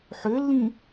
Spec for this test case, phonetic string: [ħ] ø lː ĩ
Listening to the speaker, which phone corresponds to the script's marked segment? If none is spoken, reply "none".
ħ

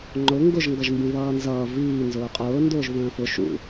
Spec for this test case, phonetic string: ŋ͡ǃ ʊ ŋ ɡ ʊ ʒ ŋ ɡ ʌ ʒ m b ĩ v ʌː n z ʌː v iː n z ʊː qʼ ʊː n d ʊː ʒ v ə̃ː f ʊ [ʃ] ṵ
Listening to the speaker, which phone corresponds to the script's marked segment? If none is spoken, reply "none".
ʃ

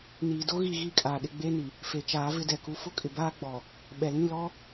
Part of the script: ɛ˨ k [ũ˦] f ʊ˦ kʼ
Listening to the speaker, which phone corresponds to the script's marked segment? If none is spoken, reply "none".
u˦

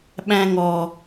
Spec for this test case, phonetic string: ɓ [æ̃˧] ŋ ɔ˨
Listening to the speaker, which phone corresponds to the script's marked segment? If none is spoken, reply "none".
æ̃˧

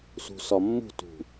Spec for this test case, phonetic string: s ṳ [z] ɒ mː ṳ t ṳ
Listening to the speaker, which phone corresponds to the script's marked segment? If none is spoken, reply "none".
s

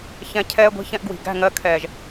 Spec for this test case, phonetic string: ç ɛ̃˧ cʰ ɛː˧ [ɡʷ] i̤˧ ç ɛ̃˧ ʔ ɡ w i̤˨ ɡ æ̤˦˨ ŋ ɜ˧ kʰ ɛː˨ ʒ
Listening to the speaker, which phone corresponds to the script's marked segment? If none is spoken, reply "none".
ɡʷ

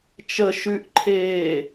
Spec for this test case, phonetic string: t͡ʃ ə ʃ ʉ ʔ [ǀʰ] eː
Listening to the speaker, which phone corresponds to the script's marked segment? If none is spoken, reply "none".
ǃʰ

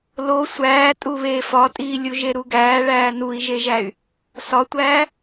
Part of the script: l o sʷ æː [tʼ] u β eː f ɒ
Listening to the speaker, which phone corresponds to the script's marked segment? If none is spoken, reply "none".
tʼ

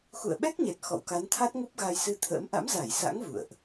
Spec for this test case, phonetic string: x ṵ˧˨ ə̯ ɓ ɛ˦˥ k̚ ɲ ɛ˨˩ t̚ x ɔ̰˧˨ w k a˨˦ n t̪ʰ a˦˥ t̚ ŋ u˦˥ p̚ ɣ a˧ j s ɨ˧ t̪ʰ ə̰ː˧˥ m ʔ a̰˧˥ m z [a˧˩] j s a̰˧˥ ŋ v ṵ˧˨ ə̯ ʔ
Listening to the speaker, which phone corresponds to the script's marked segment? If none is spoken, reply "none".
a˧˩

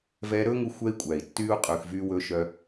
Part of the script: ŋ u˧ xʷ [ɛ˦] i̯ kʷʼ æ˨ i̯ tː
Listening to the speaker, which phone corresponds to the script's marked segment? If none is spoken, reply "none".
ɛ˦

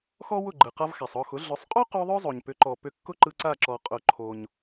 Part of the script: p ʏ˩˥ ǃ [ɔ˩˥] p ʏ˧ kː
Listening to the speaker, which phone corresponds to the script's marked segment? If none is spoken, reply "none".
ɔ˩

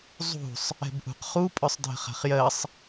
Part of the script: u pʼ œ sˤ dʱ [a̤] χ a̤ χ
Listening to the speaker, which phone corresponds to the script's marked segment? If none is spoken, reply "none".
ə̤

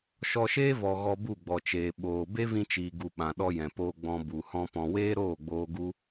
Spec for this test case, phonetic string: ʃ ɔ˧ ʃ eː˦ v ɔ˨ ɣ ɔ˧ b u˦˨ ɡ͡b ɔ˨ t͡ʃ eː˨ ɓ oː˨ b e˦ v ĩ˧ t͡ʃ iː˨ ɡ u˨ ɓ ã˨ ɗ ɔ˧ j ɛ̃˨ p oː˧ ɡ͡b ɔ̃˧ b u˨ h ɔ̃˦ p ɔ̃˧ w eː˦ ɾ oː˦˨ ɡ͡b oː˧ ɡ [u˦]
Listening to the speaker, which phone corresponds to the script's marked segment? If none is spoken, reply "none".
u˦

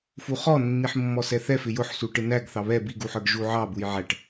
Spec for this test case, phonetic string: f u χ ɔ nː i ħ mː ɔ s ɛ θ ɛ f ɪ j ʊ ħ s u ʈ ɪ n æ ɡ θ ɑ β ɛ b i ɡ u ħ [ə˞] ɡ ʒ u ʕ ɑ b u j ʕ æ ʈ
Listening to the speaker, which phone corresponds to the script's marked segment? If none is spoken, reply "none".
ə˞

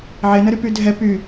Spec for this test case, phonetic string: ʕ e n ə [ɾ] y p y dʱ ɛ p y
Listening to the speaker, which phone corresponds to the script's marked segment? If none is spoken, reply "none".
ɾ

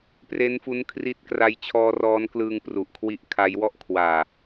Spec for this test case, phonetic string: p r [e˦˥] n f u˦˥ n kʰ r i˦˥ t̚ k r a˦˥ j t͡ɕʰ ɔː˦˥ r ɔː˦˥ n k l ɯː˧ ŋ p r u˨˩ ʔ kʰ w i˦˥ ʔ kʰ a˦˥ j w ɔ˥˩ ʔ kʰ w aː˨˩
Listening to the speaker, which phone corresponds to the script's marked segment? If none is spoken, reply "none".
e˦˥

